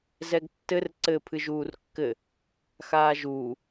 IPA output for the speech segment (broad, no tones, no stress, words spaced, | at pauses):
zɛɡtːɘr ǀɘ pʰɨʒuːrkːɘ | xaːʒuː